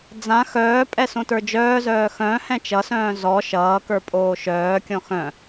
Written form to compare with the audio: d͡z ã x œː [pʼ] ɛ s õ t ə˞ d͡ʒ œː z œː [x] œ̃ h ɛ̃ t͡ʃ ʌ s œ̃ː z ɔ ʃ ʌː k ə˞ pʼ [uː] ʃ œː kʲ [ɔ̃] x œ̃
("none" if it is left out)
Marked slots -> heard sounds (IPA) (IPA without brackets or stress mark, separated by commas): pʼ, x, oː, ɔ̃